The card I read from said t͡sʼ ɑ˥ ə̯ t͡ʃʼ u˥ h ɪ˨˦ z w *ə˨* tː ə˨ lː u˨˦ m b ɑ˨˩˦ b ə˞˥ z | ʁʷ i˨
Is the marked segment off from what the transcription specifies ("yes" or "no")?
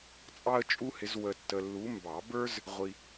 no